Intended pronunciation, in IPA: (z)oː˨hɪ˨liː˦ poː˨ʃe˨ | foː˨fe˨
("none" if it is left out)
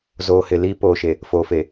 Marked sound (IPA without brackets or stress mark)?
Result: z